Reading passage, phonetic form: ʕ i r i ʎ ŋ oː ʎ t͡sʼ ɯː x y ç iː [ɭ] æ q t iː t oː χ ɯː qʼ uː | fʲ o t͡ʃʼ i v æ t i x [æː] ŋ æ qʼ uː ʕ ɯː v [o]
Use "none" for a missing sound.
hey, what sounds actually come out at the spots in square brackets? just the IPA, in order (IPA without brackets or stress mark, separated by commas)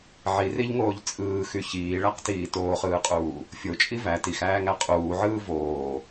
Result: ɭ, æː, oː